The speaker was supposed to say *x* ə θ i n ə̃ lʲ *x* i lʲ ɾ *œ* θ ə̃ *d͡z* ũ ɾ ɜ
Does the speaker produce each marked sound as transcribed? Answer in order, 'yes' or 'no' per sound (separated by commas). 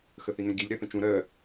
yes, no, no, no